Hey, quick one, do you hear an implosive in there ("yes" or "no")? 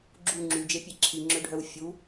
no